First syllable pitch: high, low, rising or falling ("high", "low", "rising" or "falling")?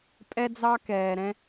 high